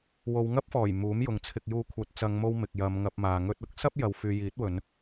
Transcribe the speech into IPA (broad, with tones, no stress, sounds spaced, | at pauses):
w o˨˧ w ŋ ɐ˥ p̚ f ɔː˨˩ j m uː˨˥ m j ʊ˨ ŋ t͡sʰ ɪ˨ k̚ j uː˨˧ kʷʰ ɐ˨ t̚ t͡s ɐ˨˧ ŋ m o˧ w m ɪ˨ k̚ j ɐ˨˧ m ŋ ɐ˧ p̚ m aː˨ ŋ ɵ˧ t̚ ʊ˥ k̚ s ɐ˥ p̚ j ɐ˨ w f yː˨ j iː˨˥ t̚ w ɵ˨˧ n